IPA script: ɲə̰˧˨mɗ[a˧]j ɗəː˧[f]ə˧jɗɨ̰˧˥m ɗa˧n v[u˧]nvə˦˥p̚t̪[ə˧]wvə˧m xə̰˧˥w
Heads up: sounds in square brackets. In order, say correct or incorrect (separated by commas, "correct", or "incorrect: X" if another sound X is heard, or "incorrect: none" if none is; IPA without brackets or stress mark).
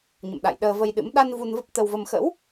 incorrect: a̰˧˨, incorrect: v, correct, correct